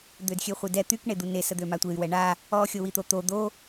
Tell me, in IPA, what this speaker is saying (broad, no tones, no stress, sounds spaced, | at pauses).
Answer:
d̪ ø d xʲ ø χʷ e d ɛ t̪ y k ɳ e d̪ u n e s ə d̪ ø m a tʷ e y̯ w ɛ ɳ a | ɔ xʲ o w i t̪ o t̪ o d̪ o